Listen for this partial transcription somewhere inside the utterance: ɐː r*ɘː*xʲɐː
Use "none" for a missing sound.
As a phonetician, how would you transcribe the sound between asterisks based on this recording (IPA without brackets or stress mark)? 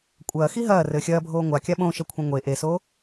ɘː